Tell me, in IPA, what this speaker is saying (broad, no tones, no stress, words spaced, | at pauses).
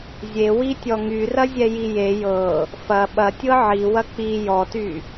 zʲewitʲɔ ŋyrɐzʲɛji je jɤ | fɐ ɓɐtʲɤ ʕiwɐ k͡pi jɔty